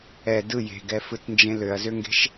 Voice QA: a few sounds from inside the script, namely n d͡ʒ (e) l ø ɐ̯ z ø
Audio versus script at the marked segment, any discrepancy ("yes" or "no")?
yes